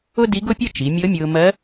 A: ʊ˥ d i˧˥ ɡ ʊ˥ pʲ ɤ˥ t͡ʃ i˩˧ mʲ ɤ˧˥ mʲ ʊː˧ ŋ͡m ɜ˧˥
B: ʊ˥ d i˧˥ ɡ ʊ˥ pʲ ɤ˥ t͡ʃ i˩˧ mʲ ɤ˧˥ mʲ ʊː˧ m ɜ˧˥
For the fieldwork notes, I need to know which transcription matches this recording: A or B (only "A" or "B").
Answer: B